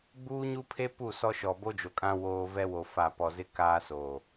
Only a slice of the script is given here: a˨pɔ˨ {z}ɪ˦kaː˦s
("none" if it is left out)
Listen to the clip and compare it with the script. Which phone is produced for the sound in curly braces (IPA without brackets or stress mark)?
z